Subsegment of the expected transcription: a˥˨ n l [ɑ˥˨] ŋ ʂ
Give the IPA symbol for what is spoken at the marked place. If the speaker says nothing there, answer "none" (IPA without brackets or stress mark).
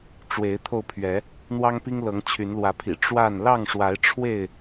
ɑ˥˨